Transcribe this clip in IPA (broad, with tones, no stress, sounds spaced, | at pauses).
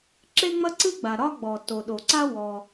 ǁ e˥ ŋ͡m ɐ˥ ǀ ɨ˥ ɡ͡b a˩ ɾ ɒ˥ ɡ͡b ɔ˩ t o˩ ɗ o˩ ǀ a˥ w ɔ˩